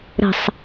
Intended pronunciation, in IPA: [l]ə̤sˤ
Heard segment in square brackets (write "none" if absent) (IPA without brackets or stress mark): ɾ